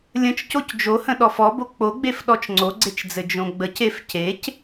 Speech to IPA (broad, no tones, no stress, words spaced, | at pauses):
lʲə̃t͡ʃ cocd͡ʒohə̃ ɗɔfɔbo k͡poɡ͡bef ɗɔt͡ʃŋ͡ǀoɡ͡ǀet͡ʃd͡zɘ d͡ʒõɡ͡bəc efcec